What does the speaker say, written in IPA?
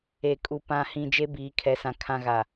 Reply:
e˨ kʼ u˨ p ã˨ h ĩ˨ d͡ʒ e˦ b iː˨ kʰ ɛ˨˦ s ã˨ kʰ ã˦ ɣ a˨

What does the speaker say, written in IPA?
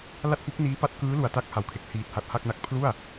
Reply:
l a˥˩ t̚ f u˦˥ k̚ n iː˦˥ p a˦˥ t̚ k ɯː˦˥ l u˨˩ a̯ t a˦˥ k̚ h a˨˩ w kʰ e˨˩ k̚ h iː˨˩ t̚ h a˨˩ t̚ h a˥˩ k̚ n a˦˥ k̚ pʰ l u˥˩ a̯

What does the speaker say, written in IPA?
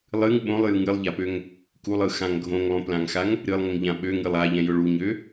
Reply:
lˠ ɨ ŋ ɓ õ lˠ j ɯ ŋ ɨ lˠ ʎ a p ø ŋ | k u lˠ ɯ x ã ŋ ɡʱ õ ŋ lˠ õ p l ã ŋ x a ŋ | ɾ ɨ lˠ ŋ ʊ ŋ ʎ ã ɓ ø ŋ ɨ lˠ a ʎ ɛ̃ j ʊ ɭ u ɲ ø

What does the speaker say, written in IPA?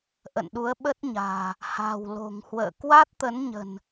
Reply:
ʔ ə̰˧˨ n ɗ u˨˦ ə̯ ɓ ə˦˥ t̚ ɲ a̤ː˨˩ | h a̤˨˩ w l o̤˨˩ ŋ h w ə̰ː˧˨ k w a˦˥ t̚ t̪ ə˨˦ n ɲ ə̤˨˩ n

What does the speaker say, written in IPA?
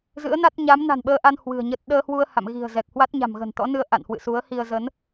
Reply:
z ɨ̰˧˥ ə̯ n a˦˥ t̚ ɲ a˨˦ m n a̤˨˩ n ɓ əː˧ ʔ a˧ n h w ɨ̤˨˩ ə̯ ɲ ə˦˥ t̚ ɗ əː˧ h w u˧ ə̯ h a̰˧˨ m ɣ i̤˨˩ ə̯ z ɛ˨˩ k̚ h w a˦˥ t̚ ɲ a̤˨˩ m ɣ ə̤˨˩ n t̪ ɔ̰˧˥ n ɨ˧ ə̯ ʔ a̰˧˨ n h w ɨ̰˧˨ s u˨˦ ə̯ h i˧ ə̯ z ə˨˦ n

